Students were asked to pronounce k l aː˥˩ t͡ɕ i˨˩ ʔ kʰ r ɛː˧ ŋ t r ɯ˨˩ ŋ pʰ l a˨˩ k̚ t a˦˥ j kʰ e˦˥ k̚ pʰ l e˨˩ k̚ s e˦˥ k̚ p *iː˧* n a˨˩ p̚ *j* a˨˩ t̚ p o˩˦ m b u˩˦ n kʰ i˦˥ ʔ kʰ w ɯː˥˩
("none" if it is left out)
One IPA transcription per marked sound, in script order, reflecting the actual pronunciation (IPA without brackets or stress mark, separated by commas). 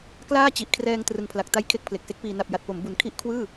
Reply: iː˧, j